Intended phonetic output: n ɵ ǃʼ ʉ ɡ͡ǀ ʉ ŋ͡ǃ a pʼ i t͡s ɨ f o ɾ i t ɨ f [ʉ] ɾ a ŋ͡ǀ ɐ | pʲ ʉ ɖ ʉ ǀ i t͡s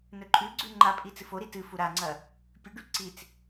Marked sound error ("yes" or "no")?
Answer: yes